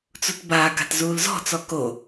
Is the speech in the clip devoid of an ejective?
yes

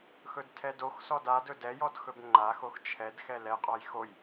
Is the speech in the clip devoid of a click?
no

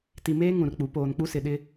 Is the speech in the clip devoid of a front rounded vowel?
yes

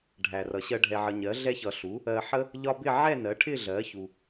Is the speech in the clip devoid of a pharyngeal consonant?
no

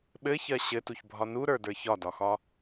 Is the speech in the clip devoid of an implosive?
no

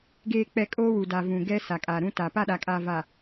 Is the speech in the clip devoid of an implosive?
no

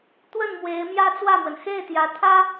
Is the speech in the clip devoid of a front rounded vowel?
yes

